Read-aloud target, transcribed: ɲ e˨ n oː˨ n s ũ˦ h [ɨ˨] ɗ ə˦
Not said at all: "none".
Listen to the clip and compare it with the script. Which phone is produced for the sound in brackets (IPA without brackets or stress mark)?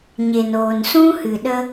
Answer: ɨ˨